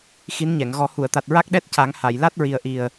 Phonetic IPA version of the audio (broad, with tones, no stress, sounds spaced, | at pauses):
x i˧˥ n ɲ ɛ˨˩˨ ŋ ɣ ɔ˨˩˦ h u˨˩˨ ə̯ t̪ a˨˩ t̚ ɹ a˦˥ k̚ ɗ ɛ˦˥ t̚ c a˨˩˦ ŋ h a˨˩˨ j l a˦˥ t̚ ɹ i˨˩ ə̯ ʔ i˨˩ ə̯